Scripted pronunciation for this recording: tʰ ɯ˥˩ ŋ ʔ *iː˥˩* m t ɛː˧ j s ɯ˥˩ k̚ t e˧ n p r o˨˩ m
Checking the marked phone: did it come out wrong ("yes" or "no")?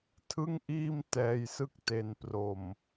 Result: no